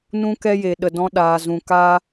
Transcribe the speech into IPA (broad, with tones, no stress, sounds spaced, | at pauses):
n ũ˦ k ɛ˦ j e˨ ɗ ə˨ d ɔ̃˧ ɗ aː˨ z ũ˨ k aː˦